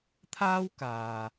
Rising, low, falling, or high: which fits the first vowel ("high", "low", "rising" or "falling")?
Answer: high